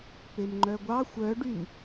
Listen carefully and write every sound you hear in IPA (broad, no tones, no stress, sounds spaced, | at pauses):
p e m ŋ͡ǃ œ ɡʷ ɑ xʷ œ ɖ y m